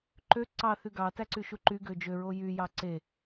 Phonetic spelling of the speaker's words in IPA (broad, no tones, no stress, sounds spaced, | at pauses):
ǃ ø ǀ ɑ θ y ɡ ɑ t æ ǀ y ʃ u ǃ y ɡ ø d͡ʒ ø ɹ o j y j ɑ ǀ e